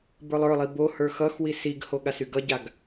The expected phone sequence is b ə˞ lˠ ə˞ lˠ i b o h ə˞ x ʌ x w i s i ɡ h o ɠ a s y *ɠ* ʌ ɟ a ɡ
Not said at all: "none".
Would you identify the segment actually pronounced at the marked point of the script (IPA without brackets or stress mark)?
ɡ